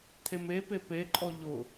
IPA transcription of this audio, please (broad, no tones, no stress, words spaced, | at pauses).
t̪ʰemepe peǃʼɔ ʎʊ